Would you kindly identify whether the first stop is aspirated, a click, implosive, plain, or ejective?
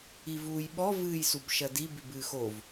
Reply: implosive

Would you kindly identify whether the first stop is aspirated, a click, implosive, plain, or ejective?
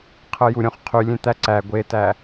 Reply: aspirated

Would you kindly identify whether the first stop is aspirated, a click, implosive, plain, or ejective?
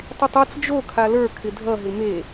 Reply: plain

